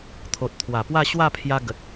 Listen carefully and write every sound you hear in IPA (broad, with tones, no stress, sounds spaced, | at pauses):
t̪ʰ o˨ t̚ t̪ʰ w a˨˩ p w a˥˧ ɕ w a˥˧ pʰ j a˧ ɡ ə˨ t̚